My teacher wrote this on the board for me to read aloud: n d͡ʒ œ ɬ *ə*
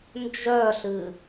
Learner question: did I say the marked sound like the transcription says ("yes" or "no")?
no